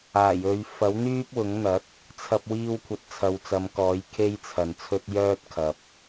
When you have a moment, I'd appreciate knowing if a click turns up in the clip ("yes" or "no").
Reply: no